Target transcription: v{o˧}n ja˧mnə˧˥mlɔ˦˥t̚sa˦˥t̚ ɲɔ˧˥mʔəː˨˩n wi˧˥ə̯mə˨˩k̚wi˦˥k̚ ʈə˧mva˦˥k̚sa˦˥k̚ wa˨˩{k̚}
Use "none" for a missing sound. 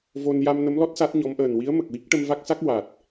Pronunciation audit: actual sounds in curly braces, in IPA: o˧, t̚

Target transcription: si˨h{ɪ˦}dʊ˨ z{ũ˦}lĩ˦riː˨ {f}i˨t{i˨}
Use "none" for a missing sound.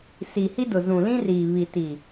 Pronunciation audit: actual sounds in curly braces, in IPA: i˦, ũ˨, β, i˨

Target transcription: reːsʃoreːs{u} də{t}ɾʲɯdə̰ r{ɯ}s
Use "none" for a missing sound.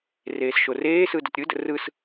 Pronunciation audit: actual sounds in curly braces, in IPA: ɯ, t, ɯ

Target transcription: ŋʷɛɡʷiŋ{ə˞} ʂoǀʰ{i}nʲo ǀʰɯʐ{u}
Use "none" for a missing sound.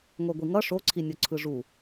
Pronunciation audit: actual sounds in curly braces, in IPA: ʌ, i, u

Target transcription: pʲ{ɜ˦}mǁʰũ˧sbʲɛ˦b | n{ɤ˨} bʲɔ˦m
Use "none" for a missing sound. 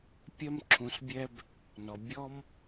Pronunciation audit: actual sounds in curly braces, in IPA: ɜ˦, ɔ˨

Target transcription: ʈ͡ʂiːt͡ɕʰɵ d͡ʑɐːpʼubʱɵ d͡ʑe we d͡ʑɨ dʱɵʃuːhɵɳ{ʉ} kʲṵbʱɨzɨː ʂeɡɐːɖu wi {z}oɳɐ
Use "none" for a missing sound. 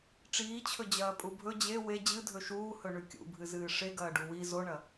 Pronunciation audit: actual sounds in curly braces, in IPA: ʉ, z

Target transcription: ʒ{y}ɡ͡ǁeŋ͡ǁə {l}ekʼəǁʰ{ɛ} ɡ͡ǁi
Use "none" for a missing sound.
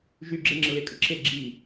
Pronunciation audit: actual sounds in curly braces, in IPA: y, l, e

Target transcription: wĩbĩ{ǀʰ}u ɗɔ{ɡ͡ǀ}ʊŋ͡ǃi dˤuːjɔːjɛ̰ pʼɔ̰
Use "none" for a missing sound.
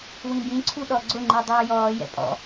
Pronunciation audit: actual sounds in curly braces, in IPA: ǀʰ, ɡ͡ǀ

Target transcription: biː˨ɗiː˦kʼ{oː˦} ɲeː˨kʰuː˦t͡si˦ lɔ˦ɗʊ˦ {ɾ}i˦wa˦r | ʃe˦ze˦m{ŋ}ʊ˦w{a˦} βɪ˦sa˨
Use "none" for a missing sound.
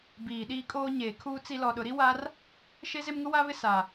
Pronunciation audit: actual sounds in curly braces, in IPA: oː˦, ɾ, ŋ, a˦

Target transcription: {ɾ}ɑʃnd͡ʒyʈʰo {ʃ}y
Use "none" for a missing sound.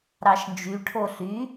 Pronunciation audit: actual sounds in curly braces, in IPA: ɾ, ɬ

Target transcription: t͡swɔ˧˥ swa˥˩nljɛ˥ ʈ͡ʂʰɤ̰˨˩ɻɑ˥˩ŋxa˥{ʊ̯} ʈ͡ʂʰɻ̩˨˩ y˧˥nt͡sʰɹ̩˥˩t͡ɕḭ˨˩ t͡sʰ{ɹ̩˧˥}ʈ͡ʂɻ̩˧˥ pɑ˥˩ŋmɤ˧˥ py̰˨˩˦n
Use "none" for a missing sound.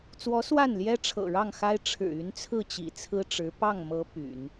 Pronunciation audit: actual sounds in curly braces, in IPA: ɪ̯, ɹ̩˥

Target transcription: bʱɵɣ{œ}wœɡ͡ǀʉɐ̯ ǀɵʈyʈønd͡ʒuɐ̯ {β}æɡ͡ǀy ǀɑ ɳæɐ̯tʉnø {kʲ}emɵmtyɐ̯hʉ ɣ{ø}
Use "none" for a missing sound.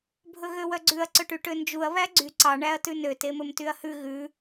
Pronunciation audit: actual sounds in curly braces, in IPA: ø, β, t, ʉ

